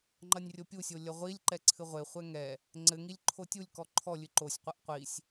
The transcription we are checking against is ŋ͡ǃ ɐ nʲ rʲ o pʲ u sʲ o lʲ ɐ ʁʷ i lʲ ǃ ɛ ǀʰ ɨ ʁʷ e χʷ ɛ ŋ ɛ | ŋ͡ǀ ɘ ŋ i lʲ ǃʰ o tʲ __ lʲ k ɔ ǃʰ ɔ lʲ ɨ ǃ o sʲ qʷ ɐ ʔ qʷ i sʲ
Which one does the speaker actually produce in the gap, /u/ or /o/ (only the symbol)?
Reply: u